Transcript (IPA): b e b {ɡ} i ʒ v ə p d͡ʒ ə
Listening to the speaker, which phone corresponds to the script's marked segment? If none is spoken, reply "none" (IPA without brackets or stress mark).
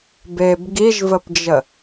ɡ